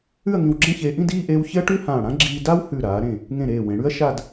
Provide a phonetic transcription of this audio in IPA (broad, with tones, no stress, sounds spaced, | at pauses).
ʉ˥˧ ɐ̯ ŋ ĩ˧ w ɡ͡ǁ ẽ˥˧ ç eː˧ ʔ ĩ˥˧ d iː˥˧ ʔ eː˧ w ç ɪ˥ ɐ̯ ʈ ʉ˥ h ãː˧˩ ɽ ã˥ ɡ͡ǁ iː˧ d a˥ w h ʉ˧˩ ɾ aː˩˧ ɾ ẽ˧˩ | ŋ ẽ˧˩ ɾ eː˧˩ w ẽ˩˧ ɽ ʉ˥ ɐ̯ ʃ a˥˧ d